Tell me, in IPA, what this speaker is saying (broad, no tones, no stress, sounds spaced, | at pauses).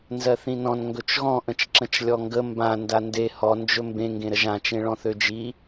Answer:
n z ɜ θ ĩ n ɔ̃ n ŋ ɡ ɵ t͡ʃ ɣ ɔ̃ ʔ ə̃ t͡ʃ ǁ ə̃ t͡ʃ lʲ ɔ ŋ ɡ ə m b ã n d a n d e h ɔ n d͡ʒ ɵ m b ẽ ŋ ɡ ẽ ɾ ə ʒ ã t͡ʃ ẽ ɭ ɔ̃ θ ø d͡ʒ i